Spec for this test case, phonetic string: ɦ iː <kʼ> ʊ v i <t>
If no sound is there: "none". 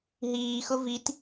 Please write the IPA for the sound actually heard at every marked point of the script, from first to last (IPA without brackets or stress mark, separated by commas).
x, t